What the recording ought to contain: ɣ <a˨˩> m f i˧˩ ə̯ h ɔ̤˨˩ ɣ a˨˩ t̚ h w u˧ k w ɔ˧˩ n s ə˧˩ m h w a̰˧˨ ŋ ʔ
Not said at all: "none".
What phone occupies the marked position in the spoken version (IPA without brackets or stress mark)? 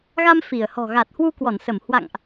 a˧